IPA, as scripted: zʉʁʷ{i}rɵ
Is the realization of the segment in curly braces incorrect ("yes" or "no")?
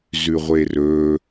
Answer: yes